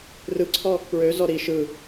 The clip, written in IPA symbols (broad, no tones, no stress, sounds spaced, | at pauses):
r ɯ ǀʰ ɔ | p ɹ ø z ɔ ɾ i ʃ ɯ